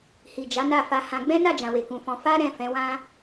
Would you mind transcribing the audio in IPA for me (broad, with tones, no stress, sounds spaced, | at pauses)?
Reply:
h i˨ d͡ʒ a˨˦ n a˦˨ f a˧ h ã˧ ɡ͡b ɛ̃˦ n a˦˨ d͡ʒ ã˨ w e˨ k ũ˨ f ɔ̃˧ f a˦ ɾ ɛ̃˦˨ f ɛ̃˨˦ w ã˦